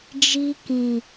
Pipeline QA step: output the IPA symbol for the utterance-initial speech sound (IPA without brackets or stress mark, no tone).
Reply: d͡ʒ